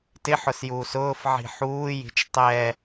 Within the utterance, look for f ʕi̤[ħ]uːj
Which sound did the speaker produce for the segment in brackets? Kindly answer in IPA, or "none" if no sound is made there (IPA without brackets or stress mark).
ħ